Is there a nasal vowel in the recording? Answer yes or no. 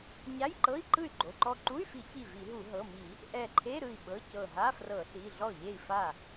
no